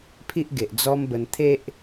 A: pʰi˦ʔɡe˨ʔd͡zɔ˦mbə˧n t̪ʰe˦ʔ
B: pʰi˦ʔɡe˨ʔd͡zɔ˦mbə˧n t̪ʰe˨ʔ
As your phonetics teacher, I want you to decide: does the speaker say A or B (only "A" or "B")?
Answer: A